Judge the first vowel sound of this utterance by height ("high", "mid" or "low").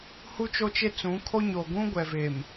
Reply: high